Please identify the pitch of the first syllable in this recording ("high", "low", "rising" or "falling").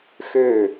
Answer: falling